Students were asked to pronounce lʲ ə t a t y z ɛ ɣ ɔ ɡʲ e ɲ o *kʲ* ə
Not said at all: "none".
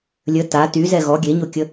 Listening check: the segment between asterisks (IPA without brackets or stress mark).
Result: kʲ